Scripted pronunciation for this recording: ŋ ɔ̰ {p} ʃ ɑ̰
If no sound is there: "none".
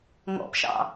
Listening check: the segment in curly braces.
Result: p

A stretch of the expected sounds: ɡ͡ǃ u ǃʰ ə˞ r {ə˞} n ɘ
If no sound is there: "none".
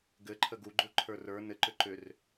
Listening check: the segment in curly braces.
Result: ə˞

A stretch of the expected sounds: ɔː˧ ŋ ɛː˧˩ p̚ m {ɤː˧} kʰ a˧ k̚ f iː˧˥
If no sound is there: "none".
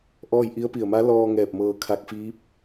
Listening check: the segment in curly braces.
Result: ɤː˧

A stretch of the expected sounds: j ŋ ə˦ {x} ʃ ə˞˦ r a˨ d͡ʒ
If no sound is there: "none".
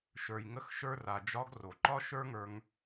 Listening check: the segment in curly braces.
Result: x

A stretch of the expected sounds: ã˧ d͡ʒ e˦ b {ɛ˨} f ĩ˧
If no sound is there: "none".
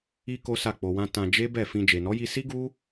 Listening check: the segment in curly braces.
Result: ɛ˦˨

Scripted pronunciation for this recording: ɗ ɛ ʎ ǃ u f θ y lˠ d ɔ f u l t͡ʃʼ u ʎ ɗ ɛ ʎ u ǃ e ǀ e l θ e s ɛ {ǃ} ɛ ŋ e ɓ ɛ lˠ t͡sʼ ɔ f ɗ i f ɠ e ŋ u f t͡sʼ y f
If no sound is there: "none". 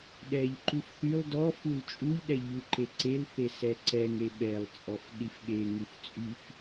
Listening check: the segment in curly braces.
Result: ǀ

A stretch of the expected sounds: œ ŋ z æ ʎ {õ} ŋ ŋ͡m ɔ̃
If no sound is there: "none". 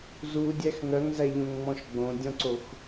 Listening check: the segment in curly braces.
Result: õ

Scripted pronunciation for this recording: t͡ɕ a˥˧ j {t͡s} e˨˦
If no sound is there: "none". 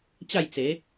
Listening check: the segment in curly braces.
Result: t͡s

